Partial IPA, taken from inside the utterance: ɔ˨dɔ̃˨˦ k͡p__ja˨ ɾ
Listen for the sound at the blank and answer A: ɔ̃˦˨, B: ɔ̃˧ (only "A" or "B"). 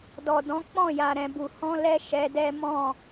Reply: A